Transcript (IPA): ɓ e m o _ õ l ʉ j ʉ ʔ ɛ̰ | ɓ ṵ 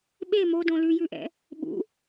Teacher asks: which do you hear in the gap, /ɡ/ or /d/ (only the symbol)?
d